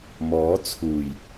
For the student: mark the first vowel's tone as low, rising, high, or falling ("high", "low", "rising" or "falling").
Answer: rising